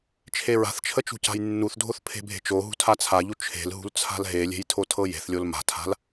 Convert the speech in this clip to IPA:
t͡ʃʰ e ɹ a̤ θ t͡ʃʰ ə t͡ʃ ṳ c a̤ j nː u θ dʱ o θ pʰ e̤ bʱ e̤ t͡ʃ o ɦ ṳ tʰ a t͡sʰ a ʎ u t͡ʃʰ e̤ l ɦ ṳ l t͡sʰ a̤ l ɦ e lʲ e̤ j tʰ o tʰ ɤ j e̤ θ lʲ o l m a̤ tʰ a̤ l

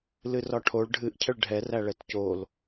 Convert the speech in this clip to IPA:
l ɨ r ɒ ʈʰ o ɭ ɖʱ ɨ ʔ cʰ ə ɭ ɖʱ ɛ r æ ɭ ɛ t c o l

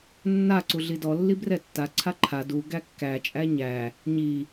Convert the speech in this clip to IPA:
nː a ǀ u ɮ i d ɔ lː i b r ɛ tː a ǀʰ a ǃʰ a d u ɡ æ kː æ t͡ʃʼ æ ɲ æ | ɲ i

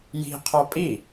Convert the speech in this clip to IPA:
j i̤ qʰ ɔ pʼ i

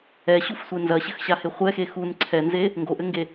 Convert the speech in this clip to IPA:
ɛ ɕ u f sʷ e n z ɐ ɕ ɘ x ɕ a h e χʷ ɛ x e x u n ǀʰ ɛ n z e | ŋ ɡ o ʔ ɘ ŋ ɡ e

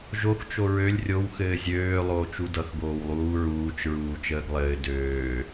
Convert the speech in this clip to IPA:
ʒ o x t͡ʃ o ɹ ø lʲ rʲ o w x ɘː zʲ øː lˠ oː t͡ʃ u d ʌ x ɡ oː w lˠ uː ɹ uː t͡ʃ ɹ uː t͡ʃ əː ɡ lˠ ɘː d øː

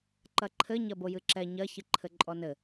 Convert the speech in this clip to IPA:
ǃ ɐ ǃʰ ɘ ɲ ɐ b o j ɨ ǁ ɛ ɲ ɐ ç ɨ ǃʰ ɘ ǃʼ ɔ n ɘ

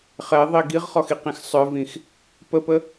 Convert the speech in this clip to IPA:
χ ɛ ðˤ i ɡ i ʁ χ ɔ x i q ĩ x sˤ œ v ĩ x | p ə p ə

